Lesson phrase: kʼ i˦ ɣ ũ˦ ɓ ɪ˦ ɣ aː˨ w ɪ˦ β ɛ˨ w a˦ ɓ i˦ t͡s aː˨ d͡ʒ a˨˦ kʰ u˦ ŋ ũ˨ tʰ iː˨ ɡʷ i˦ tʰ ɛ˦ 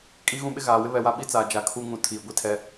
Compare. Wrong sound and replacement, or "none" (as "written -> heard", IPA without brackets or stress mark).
none